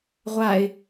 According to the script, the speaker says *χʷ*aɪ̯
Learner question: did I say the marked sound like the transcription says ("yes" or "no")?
no